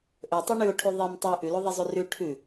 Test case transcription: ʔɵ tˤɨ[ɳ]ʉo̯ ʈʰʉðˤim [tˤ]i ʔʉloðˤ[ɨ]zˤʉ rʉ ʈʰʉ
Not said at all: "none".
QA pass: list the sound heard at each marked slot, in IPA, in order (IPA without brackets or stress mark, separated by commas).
ɳ, tˤ, i